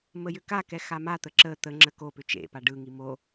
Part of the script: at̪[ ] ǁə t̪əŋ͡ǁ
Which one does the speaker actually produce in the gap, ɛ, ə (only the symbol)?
ə